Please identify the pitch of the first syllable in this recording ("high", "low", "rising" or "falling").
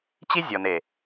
high